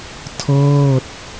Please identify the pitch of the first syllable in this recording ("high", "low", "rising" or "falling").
falling